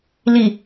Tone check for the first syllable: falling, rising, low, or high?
low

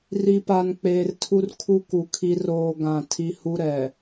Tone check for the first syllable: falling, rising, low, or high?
low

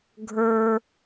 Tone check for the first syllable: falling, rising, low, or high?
high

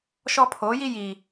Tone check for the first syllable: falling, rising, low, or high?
high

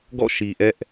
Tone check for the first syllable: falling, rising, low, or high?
falling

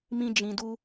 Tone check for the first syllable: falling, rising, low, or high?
high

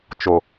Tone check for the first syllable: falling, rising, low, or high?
low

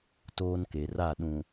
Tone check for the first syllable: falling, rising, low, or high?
high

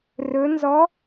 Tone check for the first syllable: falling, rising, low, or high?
rising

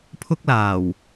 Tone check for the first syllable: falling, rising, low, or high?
high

